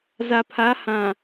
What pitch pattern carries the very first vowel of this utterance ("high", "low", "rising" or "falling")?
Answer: low